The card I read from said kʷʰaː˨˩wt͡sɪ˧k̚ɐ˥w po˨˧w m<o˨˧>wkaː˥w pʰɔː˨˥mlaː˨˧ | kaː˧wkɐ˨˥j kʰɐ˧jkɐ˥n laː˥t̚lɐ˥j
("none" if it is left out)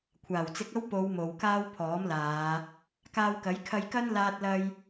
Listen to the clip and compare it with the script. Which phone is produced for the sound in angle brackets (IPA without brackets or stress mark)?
o˨˧